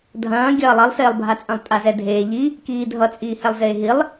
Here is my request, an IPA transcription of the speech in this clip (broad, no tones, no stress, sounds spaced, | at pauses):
dʱ ɐ̃ː ɡʲ ɐː lˠ ʌ lˠ s eː lˠ bʱ a t͡sʼ ɐ̃ lˠ tʼ a z ɛ dʱ eː ʎ i | k iː dʱ ʌ t͡sʼ iː h ɛ lˠ z eː ɦ i lˠ